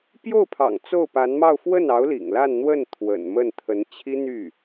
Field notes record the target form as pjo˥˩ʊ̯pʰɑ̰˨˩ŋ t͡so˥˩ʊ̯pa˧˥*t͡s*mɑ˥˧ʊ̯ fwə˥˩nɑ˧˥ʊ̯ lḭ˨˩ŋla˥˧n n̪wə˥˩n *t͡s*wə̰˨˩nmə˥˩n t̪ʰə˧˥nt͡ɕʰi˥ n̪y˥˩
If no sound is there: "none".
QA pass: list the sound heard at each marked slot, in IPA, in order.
n, t̪ʰ

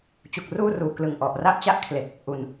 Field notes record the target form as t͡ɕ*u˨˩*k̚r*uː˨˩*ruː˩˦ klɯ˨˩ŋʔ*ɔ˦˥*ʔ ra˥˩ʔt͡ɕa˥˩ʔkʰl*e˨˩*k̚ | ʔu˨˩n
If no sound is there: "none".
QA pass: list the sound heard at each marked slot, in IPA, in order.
u˨˩, uː˥˩, ɔ˨˩, e˨˩

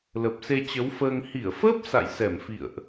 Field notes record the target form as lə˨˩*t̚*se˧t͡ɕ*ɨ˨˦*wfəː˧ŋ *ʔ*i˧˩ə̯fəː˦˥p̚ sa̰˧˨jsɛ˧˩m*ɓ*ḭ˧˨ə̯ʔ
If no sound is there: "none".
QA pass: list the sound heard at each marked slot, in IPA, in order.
p̚, ə˨˦, h, f

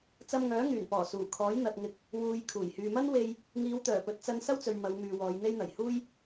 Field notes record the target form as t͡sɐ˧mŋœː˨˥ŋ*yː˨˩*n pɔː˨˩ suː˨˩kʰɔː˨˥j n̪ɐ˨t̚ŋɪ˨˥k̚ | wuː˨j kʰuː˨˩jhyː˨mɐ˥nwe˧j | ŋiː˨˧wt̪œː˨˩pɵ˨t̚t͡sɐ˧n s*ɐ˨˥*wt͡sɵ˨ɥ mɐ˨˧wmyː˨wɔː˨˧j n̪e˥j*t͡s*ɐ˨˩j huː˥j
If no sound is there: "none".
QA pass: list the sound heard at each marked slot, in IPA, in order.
yː˨˩, ɐ˥, n̪

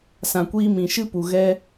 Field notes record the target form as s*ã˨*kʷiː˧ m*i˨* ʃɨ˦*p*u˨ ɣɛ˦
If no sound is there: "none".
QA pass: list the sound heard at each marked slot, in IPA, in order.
ã˨, ĩ˨, p

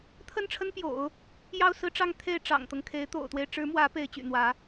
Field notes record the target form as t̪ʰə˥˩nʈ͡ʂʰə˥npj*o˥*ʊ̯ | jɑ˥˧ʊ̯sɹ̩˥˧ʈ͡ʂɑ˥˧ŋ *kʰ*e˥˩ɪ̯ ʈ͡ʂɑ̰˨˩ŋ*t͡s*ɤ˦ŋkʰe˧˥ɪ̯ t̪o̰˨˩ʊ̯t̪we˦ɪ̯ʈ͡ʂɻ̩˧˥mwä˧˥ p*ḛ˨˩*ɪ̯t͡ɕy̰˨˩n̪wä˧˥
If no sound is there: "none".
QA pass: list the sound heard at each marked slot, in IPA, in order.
o̰˨˩˦, t̪ʰ, t̪, e˧˥

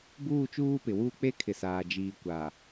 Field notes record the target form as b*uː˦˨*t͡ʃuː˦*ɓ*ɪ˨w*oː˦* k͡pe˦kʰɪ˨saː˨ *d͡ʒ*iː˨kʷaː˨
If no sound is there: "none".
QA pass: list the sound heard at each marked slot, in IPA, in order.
uː˦˨, p, uː˦, d͡ʒ

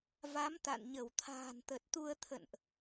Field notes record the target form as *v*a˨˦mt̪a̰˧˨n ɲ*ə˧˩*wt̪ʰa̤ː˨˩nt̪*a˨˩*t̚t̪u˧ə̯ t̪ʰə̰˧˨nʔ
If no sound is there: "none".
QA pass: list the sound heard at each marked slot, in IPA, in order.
v, ə˧˩, ə˨˩

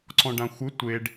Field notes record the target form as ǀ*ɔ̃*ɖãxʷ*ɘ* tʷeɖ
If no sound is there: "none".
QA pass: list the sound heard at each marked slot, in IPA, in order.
ɔ̃, ɘ

